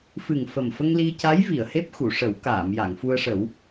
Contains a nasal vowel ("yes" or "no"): no